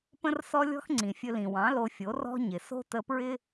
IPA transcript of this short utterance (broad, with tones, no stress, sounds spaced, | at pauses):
p ə̃˦ r s ɔ˦ lʲ ɔ̤˦ x ŋ͡ǀ ĩ˨ fʲ ɵ˧ l ĩ˨ w ɑ̃˨˦ l o˧ fʲ o˨˦ r ɔ̤˦ ɲ ɪ˨ s o̤˦ t ə˧ p ɹ ɪ˦